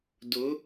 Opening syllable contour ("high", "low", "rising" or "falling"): rising